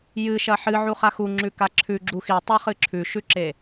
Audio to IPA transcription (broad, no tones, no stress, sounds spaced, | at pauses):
j ɨ ʃ ɐ ħ ɨ ʕ u χ a x u ŋ͡ǁ ʉ k a ǁʰ ʉ ɡ͡ǁ u x i tˤ a χ ɨ ǁʰ ʉ ʃ ʉ ǁ e